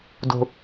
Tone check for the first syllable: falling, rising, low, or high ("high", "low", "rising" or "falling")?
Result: low